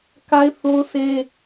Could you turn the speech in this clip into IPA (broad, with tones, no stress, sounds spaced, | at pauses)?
k a˦ ɪ̯ θ o˦ ʊ̯ sʰ e˦